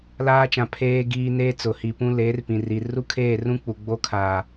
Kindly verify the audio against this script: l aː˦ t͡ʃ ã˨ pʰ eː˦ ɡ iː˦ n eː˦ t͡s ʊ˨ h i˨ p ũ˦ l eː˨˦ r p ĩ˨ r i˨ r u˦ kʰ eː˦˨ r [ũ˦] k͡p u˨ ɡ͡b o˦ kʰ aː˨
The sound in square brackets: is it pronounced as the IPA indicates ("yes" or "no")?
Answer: yes